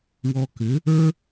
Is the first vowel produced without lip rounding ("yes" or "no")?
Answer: no